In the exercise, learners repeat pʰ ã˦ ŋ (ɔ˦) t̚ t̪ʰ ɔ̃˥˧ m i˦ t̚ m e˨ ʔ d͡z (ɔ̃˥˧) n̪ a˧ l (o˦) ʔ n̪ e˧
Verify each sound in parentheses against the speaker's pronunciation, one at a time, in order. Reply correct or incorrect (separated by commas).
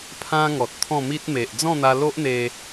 incorrect, correct, correct